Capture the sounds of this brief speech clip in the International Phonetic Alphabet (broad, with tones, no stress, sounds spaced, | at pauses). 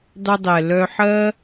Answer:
dˤ ʉ˧ dˤ ɛ˨ l œ˧ ħ ɜ˦